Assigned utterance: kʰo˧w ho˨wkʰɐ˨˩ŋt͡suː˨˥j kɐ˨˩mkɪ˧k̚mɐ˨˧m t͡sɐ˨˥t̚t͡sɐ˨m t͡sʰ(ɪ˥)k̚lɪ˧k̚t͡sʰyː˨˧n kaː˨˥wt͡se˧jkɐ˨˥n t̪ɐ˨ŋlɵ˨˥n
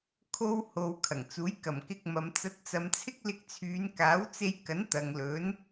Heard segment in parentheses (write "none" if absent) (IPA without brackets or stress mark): ɪ˥